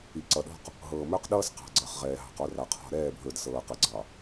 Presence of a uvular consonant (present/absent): present